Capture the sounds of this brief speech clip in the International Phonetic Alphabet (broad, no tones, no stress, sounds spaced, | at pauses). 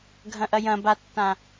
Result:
ɡʱ ɐ̃ ʔ ɐ j ɐ̃ b a tː ã